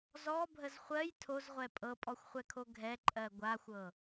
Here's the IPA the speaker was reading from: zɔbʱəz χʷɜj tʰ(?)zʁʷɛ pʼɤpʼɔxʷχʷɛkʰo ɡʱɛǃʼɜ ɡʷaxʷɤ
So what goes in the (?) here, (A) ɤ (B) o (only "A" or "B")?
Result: B